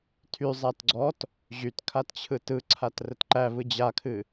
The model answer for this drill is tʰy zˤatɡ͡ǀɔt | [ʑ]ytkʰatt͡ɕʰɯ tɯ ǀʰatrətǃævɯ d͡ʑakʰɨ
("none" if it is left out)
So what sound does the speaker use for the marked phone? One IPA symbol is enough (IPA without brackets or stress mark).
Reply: ʑ